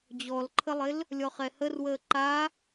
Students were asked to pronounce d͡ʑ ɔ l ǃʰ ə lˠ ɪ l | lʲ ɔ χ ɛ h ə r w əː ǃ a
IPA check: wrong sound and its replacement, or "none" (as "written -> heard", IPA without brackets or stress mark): none